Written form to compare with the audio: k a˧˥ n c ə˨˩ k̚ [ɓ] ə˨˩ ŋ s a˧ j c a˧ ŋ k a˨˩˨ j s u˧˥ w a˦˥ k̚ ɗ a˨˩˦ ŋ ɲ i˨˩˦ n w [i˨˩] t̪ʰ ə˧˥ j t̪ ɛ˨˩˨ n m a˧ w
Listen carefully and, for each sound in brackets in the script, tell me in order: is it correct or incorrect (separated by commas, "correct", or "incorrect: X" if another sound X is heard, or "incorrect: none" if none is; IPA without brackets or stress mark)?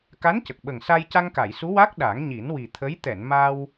correct, correct